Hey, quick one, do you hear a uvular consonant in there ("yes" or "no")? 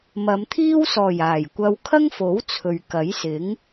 no